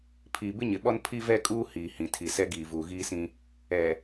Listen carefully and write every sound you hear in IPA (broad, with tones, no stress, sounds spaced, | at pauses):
pʰ iː˨ b ɪ˦ ɲ ɪ˨ ɓ ɔ˦ n pʰ i˦ v ɛ˦ kʼ uː˦ h iː˨ h ĩ˨ tʰ i˨ s ɛ˦ ɡ iː˨ v uː˨ ɣ iː˦ s ĩ˦ | ɛ˨